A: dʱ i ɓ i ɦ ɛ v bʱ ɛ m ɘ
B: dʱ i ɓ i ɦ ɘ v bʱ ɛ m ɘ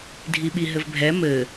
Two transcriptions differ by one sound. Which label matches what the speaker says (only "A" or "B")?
B